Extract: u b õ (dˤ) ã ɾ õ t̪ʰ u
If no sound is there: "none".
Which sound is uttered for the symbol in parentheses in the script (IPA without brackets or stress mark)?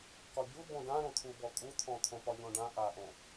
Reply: d